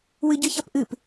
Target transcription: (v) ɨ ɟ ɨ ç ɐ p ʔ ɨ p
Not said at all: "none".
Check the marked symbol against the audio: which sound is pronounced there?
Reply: w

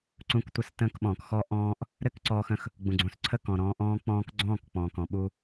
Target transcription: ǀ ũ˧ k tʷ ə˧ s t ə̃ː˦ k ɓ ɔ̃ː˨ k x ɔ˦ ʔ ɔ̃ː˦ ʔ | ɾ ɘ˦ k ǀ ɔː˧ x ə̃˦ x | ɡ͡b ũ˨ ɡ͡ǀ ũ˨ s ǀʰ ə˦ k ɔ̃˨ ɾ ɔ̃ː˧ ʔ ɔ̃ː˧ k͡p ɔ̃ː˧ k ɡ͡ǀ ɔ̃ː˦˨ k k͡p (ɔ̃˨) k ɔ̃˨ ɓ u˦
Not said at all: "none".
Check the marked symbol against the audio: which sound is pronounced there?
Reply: ɔ̃˨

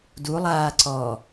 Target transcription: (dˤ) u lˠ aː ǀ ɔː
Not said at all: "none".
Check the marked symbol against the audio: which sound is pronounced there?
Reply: d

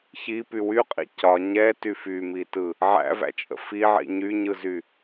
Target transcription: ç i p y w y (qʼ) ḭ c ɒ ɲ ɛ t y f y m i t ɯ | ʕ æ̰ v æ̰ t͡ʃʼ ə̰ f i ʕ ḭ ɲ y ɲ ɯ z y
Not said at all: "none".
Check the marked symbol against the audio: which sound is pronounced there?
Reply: qʼ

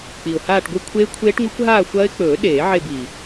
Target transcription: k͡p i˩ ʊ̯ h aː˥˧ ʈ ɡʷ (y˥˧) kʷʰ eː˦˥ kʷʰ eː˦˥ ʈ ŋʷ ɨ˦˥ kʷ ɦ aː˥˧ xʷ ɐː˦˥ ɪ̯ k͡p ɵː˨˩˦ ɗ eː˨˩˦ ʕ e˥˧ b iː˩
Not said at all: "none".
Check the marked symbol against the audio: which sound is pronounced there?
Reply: ɨ˥˧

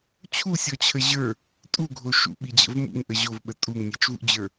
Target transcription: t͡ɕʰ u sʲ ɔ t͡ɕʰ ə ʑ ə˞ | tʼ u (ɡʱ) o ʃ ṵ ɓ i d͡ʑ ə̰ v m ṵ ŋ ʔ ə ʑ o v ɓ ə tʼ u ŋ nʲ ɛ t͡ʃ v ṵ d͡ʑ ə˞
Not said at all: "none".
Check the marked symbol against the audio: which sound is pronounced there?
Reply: ɡʱ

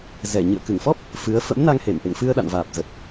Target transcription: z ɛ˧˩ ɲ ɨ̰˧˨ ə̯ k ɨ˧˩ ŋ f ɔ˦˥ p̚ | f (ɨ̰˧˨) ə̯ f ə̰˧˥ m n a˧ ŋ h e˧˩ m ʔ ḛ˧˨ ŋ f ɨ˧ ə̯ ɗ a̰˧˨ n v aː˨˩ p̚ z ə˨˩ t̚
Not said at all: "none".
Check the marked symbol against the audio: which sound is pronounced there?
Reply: ɨ˨˦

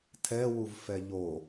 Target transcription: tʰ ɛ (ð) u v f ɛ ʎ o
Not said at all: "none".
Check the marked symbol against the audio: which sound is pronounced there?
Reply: w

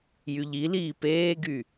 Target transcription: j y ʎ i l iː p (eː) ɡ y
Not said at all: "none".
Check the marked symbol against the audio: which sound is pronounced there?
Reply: eː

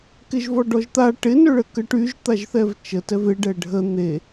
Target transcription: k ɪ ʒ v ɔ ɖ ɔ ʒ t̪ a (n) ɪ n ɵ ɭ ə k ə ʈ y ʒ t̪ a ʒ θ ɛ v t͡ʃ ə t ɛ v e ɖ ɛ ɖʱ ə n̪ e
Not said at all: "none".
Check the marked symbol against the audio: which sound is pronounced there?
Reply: ʈ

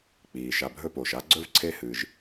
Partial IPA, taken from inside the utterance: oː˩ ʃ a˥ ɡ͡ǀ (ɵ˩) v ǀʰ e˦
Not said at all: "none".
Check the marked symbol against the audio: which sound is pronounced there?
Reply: ɵ˥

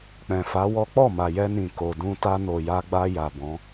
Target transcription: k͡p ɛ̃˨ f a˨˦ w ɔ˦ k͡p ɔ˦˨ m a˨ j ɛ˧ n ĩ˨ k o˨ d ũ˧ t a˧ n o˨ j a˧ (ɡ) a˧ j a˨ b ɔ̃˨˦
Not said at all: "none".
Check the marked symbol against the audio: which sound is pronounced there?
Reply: ɡ͡b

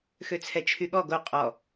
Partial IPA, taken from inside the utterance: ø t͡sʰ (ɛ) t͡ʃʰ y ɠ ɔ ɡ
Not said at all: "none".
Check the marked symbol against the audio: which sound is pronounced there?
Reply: ɛ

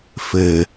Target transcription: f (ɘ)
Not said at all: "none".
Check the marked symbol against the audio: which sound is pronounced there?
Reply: ɘ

